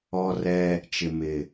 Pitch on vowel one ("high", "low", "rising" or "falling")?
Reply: high